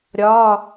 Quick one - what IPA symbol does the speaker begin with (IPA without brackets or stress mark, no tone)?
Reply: ɾʲ